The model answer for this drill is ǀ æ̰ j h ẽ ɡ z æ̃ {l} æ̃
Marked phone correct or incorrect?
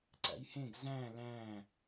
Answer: correct